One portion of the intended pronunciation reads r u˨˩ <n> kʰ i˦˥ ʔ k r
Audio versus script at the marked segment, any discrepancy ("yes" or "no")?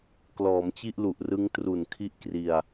no